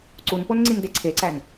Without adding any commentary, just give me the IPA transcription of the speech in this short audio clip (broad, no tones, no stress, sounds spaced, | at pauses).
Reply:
ǀ u n p o n ŋ͡ǀ i n d e ǀʰ e ǀ æ n